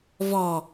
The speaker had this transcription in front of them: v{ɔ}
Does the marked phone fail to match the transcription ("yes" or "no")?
no